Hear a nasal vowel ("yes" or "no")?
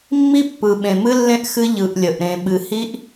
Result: yes